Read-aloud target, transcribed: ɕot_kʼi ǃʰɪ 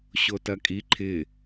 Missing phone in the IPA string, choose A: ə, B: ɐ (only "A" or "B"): B